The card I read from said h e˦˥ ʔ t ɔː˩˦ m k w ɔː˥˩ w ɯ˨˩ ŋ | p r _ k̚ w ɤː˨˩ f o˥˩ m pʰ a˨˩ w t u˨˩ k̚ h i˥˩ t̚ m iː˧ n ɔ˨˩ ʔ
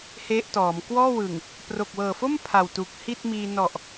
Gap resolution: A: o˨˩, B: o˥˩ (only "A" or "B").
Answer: A